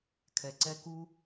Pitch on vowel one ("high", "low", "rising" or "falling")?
low